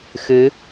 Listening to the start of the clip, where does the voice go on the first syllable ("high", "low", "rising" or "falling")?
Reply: rising